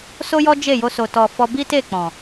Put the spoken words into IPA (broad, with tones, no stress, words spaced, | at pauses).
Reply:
so˦jɔ˦ d͡ʒe˦˨jo˧ so˨tɔ˨ fɔ˧ bi˦te˦˨ k͡pɔ̃˨